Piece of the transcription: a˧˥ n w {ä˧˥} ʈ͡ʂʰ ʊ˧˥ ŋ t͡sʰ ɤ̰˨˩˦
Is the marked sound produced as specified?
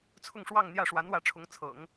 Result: yes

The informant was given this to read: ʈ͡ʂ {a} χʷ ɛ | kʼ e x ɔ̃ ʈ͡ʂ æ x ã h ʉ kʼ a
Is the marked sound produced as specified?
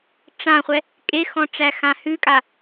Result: no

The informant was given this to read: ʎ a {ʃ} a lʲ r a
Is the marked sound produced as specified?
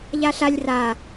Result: no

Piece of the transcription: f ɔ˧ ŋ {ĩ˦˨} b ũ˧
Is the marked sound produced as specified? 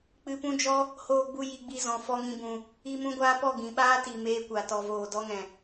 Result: no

